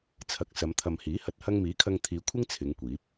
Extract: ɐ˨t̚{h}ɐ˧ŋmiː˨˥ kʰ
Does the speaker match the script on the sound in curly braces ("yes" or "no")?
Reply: yes